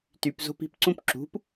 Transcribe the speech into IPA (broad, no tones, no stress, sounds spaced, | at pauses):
t y p z o̤ p i̤ p ǀ ũ p ǁ ṳ p